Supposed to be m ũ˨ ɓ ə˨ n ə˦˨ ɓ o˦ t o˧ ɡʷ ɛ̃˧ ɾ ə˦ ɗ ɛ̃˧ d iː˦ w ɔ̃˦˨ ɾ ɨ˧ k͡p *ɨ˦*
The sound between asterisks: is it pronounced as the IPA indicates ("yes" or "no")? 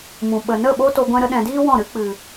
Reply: no